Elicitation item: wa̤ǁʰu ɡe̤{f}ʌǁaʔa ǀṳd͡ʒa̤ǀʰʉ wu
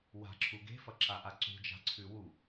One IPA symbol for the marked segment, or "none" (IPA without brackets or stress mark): f